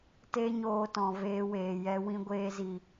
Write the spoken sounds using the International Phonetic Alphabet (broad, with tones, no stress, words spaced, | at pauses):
te˦ɲoː˧tɔ̃˨ veː˧weː˨jɛ˧ wĩ˧ɡʷeː˧zi˨